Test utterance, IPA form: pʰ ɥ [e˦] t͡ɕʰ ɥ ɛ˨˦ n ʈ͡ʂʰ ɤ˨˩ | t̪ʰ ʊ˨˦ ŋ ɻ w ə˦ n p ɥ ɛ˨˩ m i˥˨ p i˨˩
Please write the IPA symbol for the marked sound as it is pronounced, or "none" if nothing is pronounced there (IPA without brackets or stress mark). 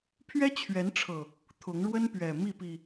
ɛ˦